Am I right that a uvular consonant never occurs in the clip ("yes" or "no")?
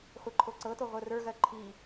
no